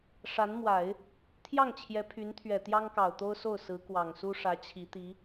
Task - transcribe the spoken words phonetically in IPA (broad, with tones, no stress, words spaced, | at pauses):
ʂa˧˥nmwa˨˩˦ɪ̯ | t̪ʰjɑ˥˩ŋt͡ɕʰjɛ˧˥ pʰy˧˥n t̪ʰɥɛ˨˩ t̪jɑ˥ŋkɑ˨˩ʊ̯t̪o˥ʊ̯so˥˩ʊ̯ sɹ̩˧˥kwɑ˨˩ŋsu˥ ʂä˧˥t͡ɕʰi˧˥t̪i˧˥